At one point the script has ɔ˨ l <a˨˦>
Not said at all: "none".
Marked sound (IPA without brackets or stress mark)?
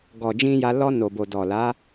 a˨˦